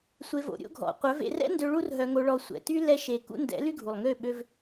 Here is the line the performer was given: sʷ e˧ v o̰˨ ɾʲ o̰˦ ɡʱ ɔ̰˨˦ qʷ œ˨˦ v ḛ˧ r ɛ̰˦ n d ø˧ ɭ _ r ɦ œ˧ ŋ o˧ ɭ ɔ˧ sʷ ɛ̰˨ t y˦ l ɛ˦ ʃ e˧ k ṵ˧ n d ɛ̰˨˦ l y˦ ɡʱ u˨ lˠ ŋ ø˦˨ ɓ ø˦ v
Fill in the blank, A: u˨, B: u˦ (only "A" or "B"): B